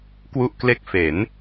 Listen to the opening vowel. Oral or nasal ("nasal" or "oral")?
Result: oral